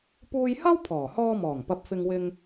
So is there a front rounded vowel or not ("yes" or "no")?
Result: no